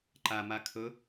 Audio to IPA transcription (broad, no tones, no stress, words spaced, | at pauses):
ǃama kʰɵ